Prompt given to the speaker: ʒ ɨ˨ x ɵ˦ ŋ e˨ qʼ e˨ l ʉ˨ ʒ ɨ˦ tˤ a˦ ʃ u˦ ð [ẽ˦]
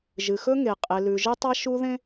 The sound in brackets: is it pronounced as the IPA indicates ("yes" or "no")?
yes